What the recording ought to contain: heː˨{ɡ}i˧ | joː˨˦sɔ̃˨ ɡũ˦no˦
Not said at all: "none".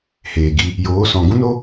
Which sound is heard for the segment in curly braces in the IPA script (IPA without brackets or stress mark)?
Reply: ɡ